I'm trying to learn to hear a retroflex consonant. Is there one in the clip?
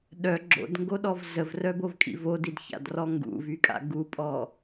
no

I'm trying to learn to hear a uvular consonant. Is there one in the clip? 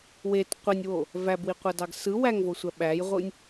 yes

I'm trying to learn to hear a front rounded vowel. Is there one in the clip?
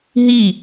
no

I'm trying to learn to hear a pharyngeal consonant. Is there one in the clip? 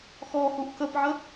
yes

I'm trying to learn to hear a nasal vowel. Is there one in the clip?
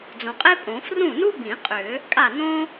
yes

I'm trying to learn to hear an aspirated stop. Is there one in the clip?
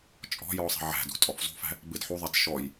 no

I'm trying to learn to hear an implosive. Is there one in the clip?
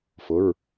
no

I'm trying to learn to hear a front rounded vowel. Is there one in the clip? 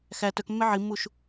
yes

